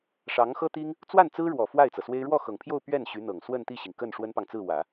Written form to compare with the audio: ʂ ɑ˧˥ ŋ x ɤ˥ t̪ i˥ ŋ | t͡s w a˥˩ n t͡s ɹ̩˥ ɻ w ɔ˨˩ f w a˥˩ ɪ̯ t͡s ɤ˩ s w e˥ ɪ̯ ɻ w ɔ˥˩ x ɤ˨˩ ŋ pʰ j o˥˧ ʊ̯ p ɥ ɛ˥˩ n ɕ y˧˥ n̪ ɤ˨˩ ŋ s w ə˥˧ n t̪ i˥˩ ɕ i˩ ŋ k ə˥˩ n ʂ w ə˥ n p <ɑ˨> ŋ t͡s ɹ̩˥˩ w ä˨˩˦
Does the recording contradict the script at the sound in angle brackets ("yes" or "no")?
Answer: no